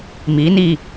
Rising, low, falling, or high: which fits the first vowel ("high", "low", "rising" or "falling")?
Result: rising